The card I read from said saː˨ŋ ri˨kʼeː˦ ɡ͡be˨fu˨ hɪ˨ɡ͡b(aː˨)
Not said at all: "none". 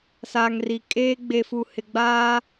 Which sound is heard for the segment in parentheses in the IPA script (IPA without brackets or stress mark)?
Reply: aː˦